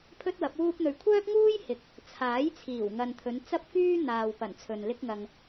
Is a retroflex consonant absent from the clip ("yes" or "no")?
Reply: yes